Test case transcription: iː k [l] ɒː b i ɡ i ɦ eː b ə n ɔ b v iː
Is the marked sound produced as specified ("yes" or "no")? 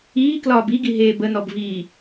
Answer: yes